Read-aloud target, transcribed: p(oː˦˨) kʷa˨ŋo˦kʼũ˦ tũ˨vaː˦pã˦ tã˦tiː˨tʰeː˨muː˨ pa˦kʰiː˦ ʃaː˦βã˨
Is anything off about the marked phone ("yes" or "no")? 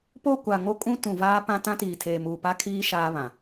yes